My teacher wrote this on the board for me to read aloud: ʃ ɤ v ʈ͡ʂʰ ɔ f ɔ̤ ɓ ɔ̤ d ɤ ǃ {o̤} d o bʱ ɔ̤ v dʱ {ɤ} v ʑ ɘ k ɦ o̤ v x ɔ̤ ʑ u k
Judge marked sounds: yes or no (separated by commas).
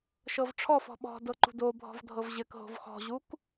no, yes